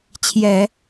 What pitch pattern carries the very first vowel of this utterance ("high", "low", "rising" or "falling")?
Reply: low